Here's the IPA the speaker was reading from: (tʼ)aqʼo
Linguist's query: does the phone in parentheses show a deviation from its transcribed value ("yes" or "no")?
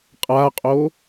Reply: yes